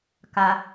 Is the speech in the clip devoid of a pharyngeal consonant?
yes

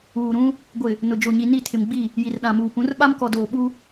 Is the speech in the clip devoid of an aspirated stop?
no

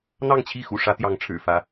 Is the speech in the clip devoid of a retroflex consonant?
no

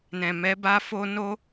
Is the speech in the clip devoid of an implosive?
yes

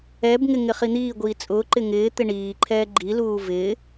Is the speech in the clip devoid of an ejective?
no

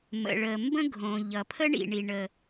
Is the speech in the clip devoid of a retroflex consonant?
no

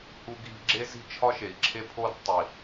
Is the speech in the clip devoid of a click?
no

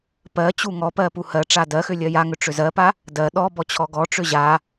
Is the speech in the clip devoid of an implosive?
no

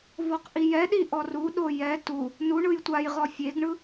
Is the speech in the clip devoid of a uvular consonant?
no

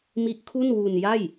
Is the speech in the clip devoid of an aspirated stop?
no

